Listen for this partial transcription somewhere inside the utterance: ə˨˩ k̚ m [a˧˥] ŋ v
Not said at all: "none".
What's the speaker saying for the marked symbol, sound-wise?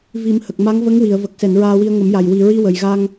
a˧˥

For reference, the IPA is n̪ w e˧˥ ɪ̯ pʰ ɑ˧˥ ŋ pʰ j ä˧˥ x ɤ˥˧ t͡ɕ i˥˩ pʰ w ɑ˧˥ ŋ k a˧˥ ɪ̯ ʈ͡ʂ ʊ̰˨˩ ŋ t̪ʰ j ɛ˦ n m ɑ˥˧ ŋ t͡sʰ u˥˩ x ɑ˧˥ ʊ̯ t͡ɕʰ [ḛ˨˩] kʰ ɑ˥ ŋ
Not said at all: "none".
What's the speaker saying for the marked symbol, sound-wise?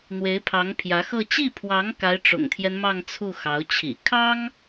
ḭ˨˩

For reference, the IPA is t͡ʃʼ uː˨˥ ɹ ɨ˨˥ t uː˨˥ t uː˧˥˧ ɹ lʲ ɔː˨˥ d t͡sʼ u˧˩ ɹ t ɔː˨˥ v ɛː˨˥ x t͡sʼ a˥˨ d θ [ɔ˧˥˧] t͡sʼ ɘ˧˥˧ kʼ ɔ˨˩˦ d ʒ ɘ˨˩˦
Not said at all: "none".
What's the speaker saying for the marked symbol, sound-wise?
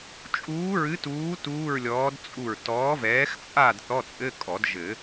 ɔ˧˥˧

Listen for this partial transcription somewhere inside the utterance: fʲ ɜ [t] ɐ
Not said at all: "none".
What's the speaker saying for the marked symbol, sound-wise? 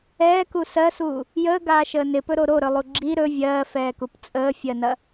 n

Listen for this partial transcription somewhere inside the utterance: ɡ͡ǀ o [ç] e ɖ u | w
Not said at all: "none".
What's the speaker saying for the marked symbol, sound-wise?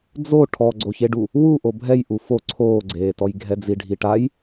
ç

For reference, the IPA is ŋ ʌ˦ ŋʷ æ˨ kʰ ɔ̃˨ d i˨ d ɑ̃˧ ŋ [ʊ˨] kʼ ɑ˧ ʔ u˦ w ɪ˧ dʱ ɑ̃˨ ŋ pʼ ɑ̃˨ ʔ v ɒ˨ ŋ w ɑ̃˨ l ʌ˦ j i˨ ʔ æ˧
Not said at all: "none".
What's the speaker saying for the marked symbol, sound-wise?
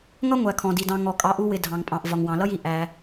ɔ˨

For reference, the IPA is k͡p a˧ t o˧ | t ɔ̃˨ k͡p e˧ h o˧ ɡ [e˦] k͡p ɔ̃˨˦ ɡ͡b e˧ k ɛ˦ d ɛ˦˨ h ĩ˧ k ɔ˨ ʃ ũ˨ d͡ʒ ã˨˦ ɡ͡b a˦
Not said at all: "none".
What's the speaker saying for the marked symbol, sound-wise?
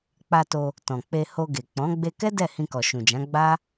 e˨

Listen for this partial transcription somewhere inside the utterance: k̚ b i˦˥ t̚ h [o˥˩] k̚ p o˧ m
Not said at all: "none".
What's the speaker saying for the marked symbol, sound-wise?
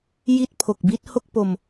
o˥˩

